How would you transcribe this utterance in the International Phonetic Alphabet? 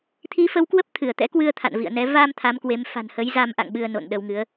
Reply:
t̪ʰi˨˦fə˨˦wkwə˦˥p̚ t̪ʰɨ˧˩ə̯t̪ɛ̰˧˥kwɨ˧ə̯ t̪ʰa̰˧˨nvḭ˧˨ə̯nɛ˨˦ va˧m t̪ʰa˨˦mkwe˨˦m fa̤˨˩nhə˨˦j za˧mʔa̰˧˨ŋ ɓɨ˧ə̯no̰˧˨nɗə˧wŋɨ˨˦ə̯

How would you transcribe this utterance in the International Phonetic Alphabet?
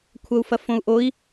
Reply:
kʷʰɐu̯fɐfõu̯ʔoi̯

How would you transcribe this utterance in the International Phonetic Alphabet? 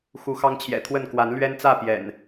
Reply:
xu˨˦xɑ˦ŋt͡ɕʰjɛ̰˨˩t̪ʰwə˥˨n kwa˨˦nlɥɛ˦nt͡sä˥˨ pjɛ̰˨˩n

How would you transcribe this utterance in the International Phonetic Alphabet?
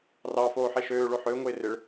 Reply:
rɑfoːħe ʃøːɭo ħøʊ̯ŋoɪ̯ rɪɭ

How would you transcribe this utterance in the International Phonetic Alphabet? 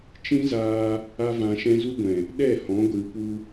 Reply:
t͡ʃĩ˦zaː˧ | a˦vã˧ʃɛ̃˦ zu˦ɡʷɛ̃˨ | ɗɛ˦˨hɔ̃˨˦ ɡʷɨ˧pu˦

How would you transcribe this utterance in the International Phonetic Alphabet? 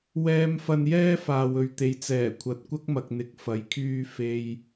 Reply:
wɛː˧m fɐ˧njɛː˥faː˨w ɵ˨ɥt̪e˨jt͡sɛː˨˩ kʷʰɐ˨t̚kʷɐ˥k̚mɐ˨k̚ n̪ɪ˧k̚ fɐ˨˥jkʰyː˥ fe˧j

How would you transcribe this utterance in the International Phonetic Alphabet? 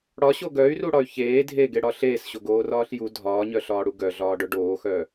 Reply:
ɽɒɕo ɡœy̯ruɽɒy̯ çeː dʱeɡeɽɒ ɬeːsɕoɡoːrɒːɬ ju dʱɒːɲœɬɒːɽu ɡœɮɒːɖœ ɖoːxœ

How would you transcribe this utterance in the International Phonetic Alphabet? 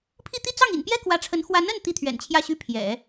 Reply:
pʰi˥˧t̪i˥˧ t͡sɑ˥˩ŋḭ˨˩npjɛ˥ kwä˧˥ʈ͡ʂʰə˧˥n xwa˧˥nə˥˩n t̪i˥t̪ʰɥɛ̰˨˩nt͡ɕʰjä˥˩ɕy˥ pʰjɛ̰˨˩˦

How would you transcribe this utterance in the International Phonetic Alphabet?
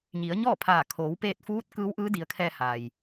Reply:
ɲi˩˧ə̯ɲɔː˥˨pʰaː˧˩ kʰoː˩˧wpeː˧t̚fuː˧˥t̚ kɯː˧˥wʔɯː˧˥di˩˧ə̯kʰɛː˧ ha˩j

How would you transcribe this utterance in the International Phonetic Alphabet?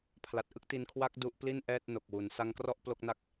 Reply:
pʰla˨˩t̚ʔɯ˥˩k̚ti˧n kʰwa˦˥k̚ du˦˥ʔpli˥˩nʔɛː˥˩t̚ no˨˩k̚wu˩˦n sa˦˥ŋkrɔ˥˩ʔ plo˥˩k̚na˥˩k̚

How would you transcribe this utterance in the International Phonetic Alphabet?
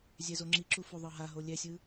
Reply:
zʲɛzoŋ͡ǁiǁu fuðˤɤɦaɦo lʲɛsʲɯ

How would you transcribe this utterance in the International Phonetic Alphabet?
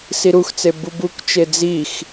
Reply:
siɾuxt͡se bubukt͡ʃe d͡zix

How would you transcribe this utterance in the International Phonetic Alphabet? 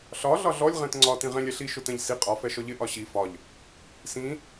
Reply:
ɬɒ ɮɒɮɔlʲ ʁɛ̃tŋ͡ǀɒ tĩʁɛ̃lʲ ɛɬi ʃʊtɛ̃ʎsi qʼɒ fɛʃɔʎɪ ʔɒɕi fɒʎ | sĩ

